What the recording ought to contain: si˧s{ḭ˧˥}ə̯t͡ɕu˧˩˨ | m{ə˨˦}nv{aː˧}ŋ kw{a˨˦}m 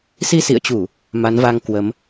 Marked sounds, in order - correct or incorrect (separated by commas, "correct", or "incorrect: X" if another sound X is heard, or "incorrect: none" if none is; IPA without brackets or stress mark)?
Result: incorrect: ḭ˧˨, incorrect: a˨˦, incorrect: a˧, incorrect: ə˨˦